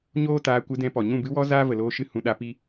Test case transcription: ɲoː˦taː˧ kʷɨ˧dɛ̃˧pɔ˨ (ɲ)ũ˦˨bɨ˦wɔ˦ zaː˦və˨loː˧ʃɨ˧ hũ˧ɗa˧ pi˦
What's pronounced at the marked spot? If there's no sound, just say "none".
ɲ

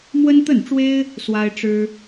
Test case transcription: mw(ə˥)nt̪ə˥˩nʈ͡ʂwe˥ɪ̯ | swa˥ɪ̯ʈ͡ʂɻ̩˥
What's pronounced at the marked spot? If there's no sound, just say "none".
ə˥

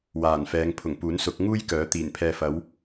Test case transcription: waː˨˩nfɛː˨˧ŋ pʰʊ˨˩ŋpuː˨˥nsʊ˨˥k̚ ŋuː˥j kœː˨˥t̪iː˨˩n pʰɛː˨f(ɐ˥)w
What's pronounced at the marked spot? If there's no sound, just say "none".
ɐ˨˥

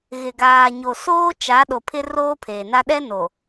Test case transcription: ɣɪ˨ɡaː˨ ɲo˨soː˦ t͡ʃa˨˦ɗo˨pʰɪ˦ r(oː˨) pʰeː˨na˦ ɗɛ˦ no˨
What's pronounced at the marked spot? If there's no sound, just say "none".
oː˦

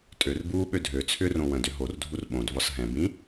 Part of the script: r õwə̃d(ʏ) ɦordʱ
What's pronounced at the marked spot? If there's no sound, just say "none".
ʏ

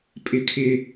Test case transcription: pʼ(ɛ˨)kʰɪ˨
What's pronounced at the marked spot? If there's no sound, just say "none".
ɪ˨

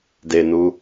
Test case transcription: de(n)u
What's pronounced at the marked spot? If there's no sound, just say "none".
n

